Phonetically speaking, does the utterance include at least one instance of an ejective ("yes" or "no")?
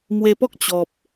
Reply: no